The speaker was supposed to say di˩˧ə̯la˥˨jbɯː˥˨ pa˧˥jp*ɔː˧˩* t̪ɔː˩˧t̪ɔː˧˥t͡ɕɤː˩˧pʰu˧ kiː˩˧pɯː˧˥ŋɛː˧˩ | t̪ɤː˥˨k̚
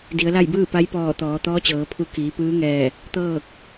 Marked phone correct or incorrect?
correct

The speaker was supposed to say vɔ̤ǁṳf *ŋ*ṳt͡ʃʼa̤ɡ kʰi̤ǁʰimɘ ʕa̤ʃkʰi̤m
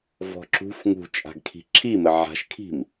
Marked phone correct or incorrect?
correct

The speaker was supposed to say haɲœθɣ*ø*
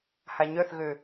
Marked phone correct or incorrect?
correct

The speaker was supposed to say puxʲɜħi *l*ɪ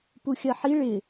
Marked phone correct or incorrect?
incorrect: ɭ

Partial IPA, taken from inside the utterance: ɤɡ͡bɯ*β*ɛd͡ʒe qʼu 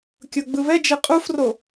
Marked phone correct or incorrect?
correct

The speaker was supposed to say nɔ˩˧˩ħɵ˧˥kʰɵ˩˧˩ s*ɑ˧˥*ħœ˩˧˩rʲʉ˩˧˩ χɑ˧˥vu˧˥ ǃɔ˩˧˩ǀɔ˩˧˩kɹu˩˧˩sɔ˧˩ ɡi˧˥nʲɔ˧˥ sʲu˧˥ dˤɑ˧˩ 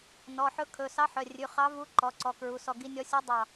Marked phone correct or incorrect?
correct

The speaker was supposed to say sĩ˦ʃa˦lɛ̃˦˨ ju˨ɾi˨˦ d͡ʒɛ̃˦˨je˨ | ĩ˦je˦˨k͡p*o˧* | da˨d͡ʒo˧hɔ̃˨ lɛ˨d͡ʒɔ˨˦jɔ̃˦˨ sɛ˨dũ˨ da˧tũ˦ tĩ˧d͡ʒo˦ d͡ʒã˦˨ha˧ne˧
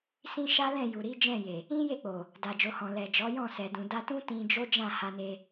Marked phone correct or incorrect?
incorrect: o˨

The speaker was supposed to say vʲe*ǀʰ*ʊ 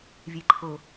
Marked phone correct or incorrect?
incorrect: ǃʰ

